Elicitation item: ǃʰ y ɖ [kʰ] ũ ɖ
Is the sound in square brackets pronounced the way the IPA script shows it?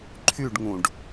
no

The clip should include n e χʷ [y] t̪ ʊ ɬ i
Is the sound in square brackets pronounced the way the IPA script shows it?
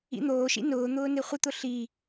no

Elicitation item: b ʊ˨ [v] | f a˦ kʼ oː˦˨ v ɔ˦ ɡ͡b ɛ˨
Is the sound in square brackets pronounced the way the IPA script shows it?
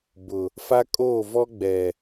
no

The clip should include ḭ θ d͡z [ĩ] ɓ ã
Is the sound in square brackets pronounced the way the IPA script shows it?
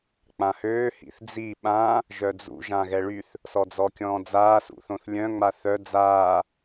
no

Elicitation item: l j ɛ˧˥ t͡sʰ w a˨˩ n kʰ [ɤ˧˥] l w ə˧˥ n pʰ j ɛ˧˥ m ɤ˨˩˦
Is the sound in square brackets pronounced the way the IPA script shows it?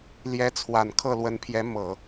no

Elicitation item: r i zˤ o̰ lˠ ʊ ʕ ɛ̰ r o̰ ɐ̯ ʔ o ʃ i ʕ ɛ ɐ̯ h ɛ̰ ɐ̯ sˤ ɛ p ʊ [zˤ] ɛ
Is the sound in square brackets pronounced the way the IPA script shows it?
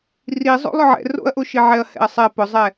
yes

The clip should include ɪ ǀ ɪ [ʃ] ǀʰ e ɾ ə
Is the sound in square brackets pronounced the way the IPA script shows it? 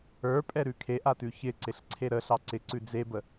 no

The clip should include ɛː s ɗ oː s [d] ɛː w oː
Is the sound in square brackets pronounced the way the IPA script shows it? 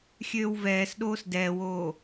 yes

